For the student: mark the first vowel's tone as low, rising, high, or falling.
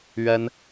high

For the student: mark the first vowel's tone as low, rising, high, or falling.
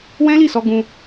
high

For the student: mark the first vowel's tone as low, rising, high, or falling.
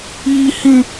high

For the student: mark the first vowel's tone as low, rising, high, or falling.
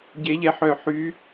rising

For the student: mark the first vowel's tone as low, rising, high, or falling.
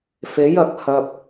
rising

